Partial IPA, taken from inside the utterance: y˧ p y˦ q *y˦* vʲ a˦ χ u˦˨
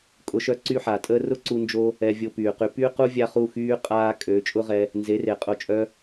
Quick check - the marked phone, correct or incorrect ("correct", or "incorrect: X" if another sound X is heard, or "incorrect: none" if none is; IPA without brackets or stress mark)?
incorrect: u˦